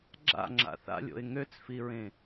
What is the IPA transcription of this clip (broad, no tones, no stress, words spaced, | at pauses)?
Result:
ɡ͡ǁa̰ ŋ͡ǁa̰θa̰lʲo̰ɪ̯ ŋøt͡sfiɹẽ